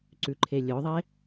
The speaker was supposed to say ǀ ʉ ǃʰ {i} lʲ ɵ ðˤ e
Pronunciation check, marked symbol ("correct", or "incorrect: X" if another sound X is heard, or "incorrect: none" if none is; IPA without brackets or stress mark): incorrect: e